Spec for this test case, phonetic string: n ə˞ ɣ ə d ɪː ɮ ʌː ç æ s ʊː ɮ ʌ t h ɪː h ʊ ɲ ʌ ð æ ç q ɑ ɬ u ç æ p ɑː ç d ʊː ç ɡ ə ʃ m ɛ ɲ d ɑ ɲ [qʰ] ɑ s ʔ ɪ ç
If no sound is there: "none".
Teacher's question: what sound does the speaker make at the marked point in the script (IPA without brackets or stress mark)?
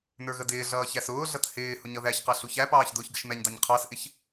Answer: qʰ